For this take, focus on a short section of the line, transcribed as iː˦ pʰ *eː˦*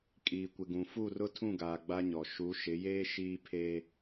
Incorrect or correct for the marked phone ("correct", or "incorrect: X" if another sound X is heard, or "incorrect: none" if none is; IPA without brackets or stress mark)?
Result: correct